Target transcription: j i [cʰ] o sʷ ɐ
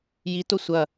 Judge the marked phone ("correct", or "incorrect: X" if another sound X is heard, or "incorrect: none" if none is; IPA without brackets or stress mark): incorrect: t